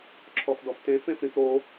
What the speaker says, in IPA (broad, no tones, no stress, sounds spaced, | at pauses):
ǁʰ ɔ f d ɔ f t ẽ f ẽ f ɾ ĩ f ɾ o